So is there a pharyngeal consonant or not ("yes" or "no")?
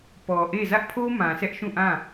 no